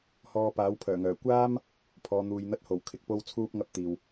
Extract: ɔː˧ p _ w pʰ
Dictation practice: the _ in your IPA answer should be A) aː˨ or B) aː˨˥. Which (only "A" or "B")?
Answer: B